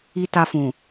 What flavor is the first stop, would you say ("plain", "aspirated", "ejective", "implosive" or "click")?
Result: plain